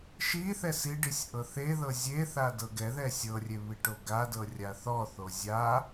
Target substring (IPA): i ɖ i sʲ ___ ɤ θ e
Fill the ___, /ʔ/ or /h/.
ʔ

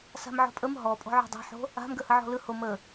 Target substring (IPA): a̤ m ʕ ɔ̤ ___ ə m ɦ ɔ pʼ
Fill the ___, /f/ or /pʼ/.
pʼ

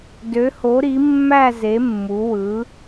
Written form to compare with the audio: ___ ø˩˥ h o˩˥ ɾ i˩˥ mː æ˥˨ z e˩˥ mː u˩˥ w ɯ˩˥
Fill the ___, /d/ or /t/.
d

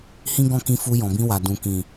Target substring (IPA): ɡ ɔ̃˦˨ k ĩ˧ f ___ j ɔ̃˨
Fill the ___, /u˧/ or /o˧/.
u˧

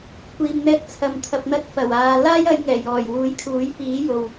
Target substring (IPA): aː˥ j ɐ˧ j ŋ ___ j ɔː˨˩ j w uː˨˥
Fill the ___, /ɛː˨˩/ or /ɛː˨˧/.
ɛː˨˩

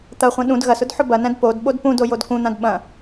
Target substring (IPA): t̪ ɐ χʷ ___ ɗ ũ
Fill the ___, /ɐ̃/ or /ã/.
ɐ̃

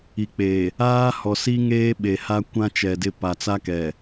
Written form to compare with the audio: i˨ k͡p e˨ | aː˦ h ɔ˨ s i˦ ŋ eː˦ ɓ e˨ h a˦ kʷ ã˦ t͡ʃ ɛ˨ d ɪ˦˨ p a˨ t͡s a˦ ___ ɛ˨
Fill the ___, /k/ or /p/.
k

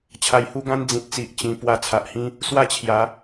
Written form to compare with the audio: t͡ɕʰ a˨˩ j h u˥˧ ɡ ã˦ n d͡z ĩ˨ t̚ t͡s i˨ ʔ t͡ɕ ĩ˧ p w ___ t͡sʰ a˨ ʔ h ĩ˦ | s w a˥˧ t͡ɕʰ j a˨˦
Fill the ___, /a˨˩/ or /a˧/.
a˧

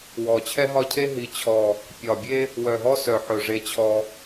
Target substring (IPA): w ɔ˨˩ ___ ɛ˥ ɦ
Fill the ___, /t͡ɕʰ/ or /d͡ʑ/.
t͡ɕʰ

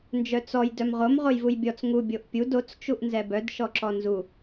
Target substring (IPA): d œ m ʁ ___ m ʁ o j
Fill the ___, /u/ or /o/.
o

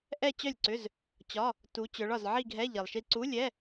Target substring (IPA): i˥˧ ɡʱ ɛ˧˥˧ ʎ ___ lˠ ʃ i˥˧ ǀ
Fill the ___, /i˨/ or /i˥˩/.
i˨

